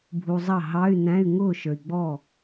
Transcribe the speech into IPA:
bʱ u˨ zˤ ɑ˥˩ ɦ ɑ˧˥˧ y̯ n æ̃˧˥˧ y̯ ŋ ʊː˥˩ ʃ ə˞˨ i̯ ɡ͡b ɔ˥˩

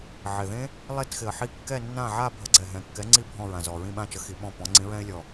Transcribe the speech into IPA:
ʕ ɪ˨˩ ð ẽ˦˥ | lˠ e˦˨ t x ɪ˨˩ ə̯ ħ i˦˨ kː ɛ˦˨ nː ã˦˨ ʕ a˦˨ bʱ ə˨˥ ɡ͡ǀ ɛ˨˩ ɦ ɛ̃˨˩ kː ɛ˨˥ ŋ͡ǀ i˦˨ bʱ ɔ̃˦˨ ɹ ã˨˩ z ɔ˨˩ ɹ ĩ˦˨ ɓ ã˦˨ t͡ʃ ə˨˥ x i˨˥ ɓ ɔ̃˦˨ p ɔ̃˨˥ ŋ͡ǀ ĩ˨˥ ɹ ɛ̃˦˥ ɪ̯ lʲ ɔ˨˩

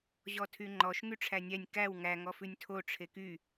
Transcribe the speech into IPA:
ʑ ɔ tʰ y ŋ͡ǃ ɔ ʃ ŋ y ʈ͡ʂʰ æ nʲ æ nʲ k æ w ŋ æ ŋ ɔ f ʉ nʲ tʰ o ʈ͡ʂʰ e k y

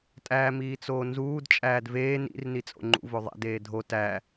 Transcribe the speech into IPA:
tʼ æː m iː t͡s oː n z uː d t͡ʃʼ æː d v eː n ḭ r n i t͡sʼ o̰ ŋ͡ǃ ṵ v o ðˤ æ̰ d eː dʱ o t æ

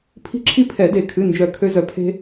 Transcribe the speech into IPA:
pʰ i̤˦ ǁʰ i˦ pʰ ɛ˨˩˦ d e˨˩˦ kʰ ɨ˩˧˩ n d͡ʒ œ˨˩˦ kʰ ø˦ z œ˧˩ pʰ e̤˦

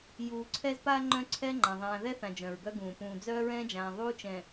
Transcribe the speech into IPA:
j uː˨ ǀʰ ɛ˦ z p aː˦ ŋ͡ǃ œ̃˦ ǀʰ ɛ˦ ŋ͡ǃ ã˨ ðˤ ãː˨ ð ɛ˦ θ ã˨ d͡ʒ œ̃˨ ɹ ɡ œ˦ ɡ ũː˨ p ũː˨ d͡z œː˦ ɹ ɛ̃ː˦ d͡ʒ ãː˨ ðˤ uː˦ t͡ʃ ɛ̃˨

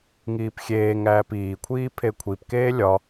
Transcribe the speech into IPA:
ŋ iː p xʲ eː ŋ æː p iː kʷʰ iː pʰ e kʷʰ i p k eː lʲ ɒ

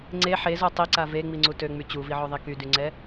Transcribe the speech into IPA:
ŋ͡ǀ e ħ e z o tˤ i ǀ a v e ŋ͡m i ŋ͡ǀ u t ø ŋ͡m y t͡ɕ u v i ʕ o ðˤ i k y d y ŋ͡ǀ ɛ

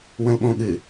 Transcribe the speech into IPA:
w ə̃ l ɓ õ ɠ ɨ

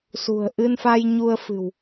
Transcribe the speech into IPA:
s ṳ˨˩ ə̯ ʔ ɨ˧ n f a˧ j ɲ u˧ ə̯ f ɨ̤˨˩ w

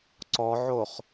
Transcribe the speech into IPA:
ǀ ɔ ʕ o χ

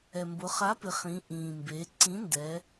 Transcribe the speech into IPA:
ɛ˩ m b ʊ˩˧ χ a˨˥ p ɪ˩˧ χ ĩ˩˧ ʔ ĩː˩ m b e˩˧ ǀ ĩ˨˥ n d ɛ˩˧

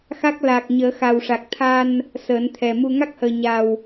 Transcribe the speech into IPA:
x a˦˥ k̚ l a˨˩ k̚ ɲ əː˨˩˦ x a˨˩ w ʂ a˨˩ k̚ t̪ʰ a˧ n | s əː˨˩˦ n t̪ʰ ɛ˨˩ m u˧ ŋ a˦˥ k̚ h əː˨˩ ɲ a˨˩ w

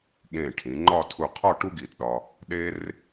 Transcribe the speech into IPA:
ɠ ẽ˧˩ ʈʰ ĩ˩˧ ŋ͡ǃ ɒ˥˧ tʰ u˧˩ qʰ ɒ˥˧ ʈ u˥ ɡ i˧˩ t ɗ ɒ˧ | ɗ e˥ r

